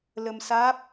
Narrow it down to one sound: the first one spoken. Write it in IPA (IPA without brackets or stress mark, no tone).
l